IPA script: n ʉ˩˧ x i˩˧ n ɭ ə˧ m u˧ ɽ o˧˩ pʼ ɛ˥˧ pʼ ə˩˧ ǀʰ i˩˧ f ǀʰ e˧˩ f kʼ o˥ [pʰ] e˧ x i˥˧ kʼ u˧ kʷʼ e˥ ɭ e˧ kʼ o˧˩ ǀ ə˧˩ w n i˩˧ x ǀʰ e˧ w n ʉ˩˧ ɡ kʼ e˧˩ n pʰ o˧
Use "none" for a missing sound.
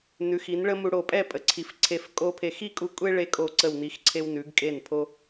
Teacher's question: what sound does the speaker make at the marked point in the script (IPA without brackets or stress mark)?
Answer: pʰ